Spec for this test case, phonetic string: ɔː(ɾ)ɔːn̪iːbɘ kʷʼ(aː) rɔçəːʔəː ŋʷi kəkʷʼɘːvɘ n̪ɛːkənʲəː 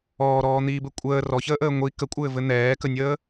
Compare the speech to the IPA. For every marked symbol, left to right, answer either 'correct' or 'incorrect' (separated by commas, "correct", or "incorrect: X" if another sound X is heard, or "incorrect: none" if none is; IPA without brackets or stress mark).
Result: correct, incorrect: əː